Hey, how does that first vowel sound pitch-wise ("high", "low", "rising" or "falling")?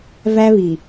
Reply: high